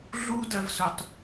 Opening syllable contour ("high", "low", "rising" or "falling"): high